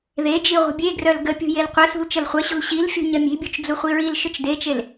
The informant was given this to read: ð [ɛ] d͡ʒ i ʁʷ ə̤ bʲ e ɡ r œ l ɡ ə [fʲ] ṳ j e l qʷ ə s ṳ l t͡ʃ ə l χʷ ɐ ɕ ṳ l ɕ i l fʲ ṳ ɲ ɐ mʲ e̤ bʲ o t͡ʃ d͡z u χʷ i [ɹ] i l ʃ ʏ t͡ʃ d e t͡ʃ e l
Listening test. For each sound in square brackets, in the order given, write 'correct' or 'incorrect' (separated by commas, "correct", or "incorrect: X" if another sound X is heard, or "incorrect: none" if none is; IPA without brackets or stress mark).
incorrect: e, incorrect: pʲ, correct